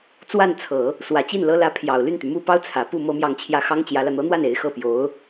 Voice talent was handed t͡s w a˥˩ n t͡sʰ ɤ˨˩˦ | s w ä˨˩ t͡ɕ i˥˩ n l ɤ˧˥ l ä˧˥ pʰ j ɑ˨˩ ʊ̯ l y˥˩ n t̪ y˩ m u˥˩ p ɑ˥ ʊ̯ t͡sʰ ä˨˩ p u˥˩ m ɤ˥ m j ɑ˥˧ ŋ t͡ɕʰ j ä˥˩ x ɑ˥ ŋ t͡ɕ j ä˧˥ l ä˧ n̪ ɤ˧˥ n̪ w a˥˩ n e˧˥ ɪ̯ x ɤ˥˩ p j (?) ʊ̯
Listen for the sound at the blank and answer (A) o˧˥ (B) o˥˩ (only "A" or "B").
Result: A